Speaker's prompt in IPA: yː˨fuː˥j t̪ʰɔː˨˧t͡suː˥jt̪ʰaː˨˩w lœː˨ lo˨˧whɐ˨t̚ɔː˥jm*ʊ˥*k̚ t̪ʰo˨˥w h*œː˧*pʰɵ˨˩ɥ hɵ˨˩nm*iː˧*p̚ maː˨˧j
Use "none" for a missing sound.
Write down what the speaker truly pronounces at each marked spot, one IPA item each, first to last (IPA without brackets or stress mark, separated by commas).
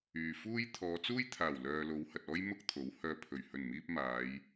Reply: ʊ˥, œː˧, iː˧